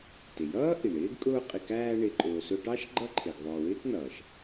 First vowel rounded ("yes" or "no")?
no